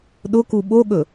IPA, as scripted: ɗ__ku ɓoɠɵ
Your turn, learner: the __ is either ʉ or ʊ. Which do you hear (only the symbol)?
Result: ʊ